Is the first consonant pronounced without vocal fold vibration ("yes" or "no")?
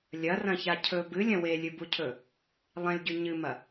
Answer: no